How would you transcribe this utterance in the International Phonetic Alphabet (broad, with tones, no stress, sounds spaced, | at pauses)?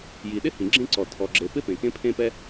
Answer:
j i˩ ɗ ɪ˥ h ĩ˩ ɡ͡ǁ ẽ˥ ǀ ɔ˩ tʰ ɔ˩ ɡ͡ǁ e˩ p ɪ˥ p ẽ˩ k ẽ˥ pʰ ẽ˥ p ɛ˥